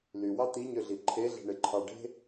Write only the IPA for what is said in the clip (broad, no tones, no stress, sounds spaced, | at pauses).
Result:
l y w ɑ t̪ i ɲ ø ɮ i ǃʰ e ɮ e̤ ɳ e ǃʰ ɑ ɖ e̤